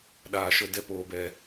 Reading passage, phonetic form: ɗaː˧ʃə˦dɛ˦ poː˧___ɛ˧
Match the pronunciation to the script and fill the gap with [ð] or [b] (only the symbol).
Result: b